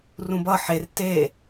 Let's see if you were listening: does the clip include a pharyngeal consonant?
yes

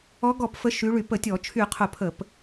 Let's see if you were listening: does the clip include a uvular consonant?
yes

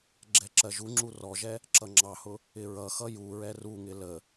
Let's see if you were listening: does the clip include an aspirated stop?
no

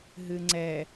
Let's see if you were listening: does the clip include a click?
yes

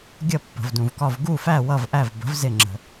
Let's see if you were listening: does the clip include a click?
yes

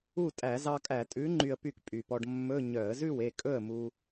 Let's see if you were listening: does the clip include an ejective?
yes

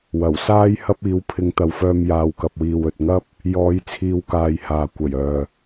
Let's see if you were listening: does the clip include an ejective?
no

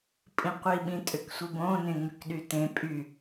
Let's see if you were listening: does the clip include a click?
no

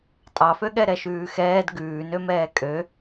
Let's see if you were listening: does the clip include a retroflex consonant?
no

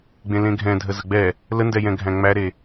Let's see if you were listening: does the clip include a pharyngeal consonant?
no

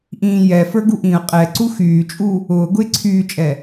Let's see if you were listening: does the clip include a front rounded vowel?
yes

